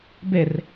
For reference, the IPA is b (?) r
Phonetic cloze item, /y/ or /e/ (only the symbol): e